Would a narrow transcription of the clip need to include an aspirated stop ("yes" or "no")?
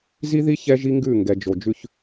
no